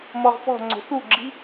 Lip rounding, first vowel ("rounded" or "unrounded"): rounded